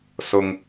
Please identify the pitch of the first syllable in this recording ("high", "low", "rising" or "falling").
low